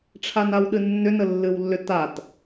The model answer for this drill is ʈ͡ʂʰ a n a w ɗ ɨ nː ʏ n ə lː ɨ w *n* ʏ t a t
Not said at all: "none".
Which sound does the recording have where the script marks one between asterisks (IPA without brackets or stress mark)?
lː